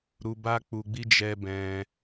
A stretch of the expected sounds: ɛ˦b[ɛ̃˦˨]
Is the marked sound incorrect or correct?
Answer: incorrect